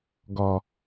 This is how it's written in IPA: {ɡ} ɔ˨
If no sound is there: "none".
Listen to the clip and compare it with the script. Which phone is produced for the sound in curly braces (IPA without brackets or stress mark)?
ɡ